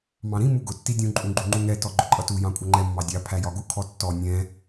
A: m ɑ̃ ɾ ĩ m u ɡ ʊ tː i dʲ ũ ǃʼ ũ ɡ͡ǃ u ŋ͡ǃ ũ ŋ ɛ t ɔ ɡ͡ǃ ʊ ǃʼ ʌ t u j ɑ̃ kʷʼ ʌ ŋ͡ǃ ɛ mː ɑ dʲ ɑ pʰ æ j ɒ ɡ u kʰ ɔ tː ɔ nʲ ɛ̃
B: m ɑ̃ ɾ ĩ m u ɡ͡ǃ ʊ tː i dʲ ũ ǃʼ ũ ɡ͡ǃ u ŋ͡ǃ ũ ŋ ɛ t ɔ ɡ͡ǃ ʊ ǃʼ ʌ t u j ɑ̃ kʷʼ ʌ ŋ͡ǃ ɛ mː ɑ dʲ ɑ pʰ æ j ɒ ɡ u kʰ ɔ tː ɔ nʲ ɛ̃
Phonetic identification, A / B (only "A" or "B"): A